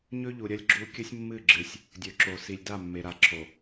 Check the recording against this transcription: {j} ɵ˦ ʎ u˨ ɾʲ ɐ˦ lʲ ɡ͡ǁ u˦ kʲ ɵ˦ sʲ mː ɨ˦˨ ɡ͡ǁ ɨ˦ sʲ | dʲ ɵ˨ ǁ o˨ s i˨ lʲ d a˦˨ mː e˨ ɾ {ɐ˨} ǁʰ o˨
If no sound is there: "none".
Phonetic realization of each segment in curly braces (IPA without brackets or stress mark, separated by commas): ɲ, a˨